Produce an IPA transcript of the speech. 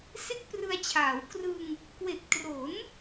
s e˥˩ k̚ p r ɯ˧ a̯ t͡ɕʰ aː˩˦ w k r ɯ˧ ŋ | k w e˨˩ k̚ t r o˩˦ n

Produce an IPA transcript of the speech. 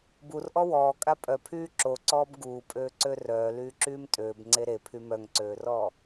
b u r ʔ ɔ w ɔː kʼ a pʼ œ pʰ yː ǁ o ǀ ɔː b ɡ uː pʼ øː ǀ ø r œː l yː ǁ yː m tʼ øː b ŋ͡ǀ e ɾ e pʰ y m œ ŋ ǀ øː r ɔː

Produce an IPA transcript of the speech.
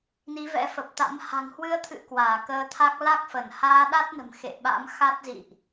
n i˨˦ v ɛ̰˧˥ f ə˨˩ p̚ t̪ a̰˧˥ m h a̤˨˩ ŋ h w ɨ˧ ə̯ t̪ʰ ɨ̰˧˨ k w aː˧˩ k əː˧ t̪ʰ a˦˥ k̚ l a˦˥ k̚ f ə˧˩ n h aː˧ ɗ a˦˥ t̚ n ə̤˨˩ m x ḛ˧˨ ɓ a̰˧˥ m x a˦˥ t̚ z ḭ˧˨ ʔ

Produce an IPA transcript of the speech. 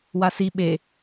w a s i ɓ e

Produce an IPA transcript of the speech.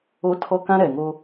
o˦ tʰ ɔ˦ k ã˦ ɾ ɛ˨ ŋ o˦

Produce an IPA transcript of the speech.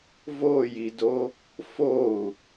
v o j i d o | f o u̯

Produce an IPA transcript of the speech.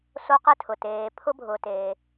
s o˦ q ɛ˥ tʰ ʊ˩ t eː˨ pʰ ʊ˥ bʱ ʊ˨ t eː˩

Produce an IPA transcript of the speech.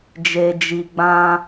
d͡ʒ e˨ d͡ʒ i˨ ɡ͡b ã˧

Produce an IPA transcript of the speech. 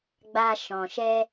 ɡ͡b a˧ ʃ ɔ̃˨ ʃ ɛ˧

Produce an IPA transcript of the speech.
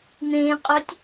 n̪ ẽ qʼ œ tʲ

